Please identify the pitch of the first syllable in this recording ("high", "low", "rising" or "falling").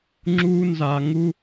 high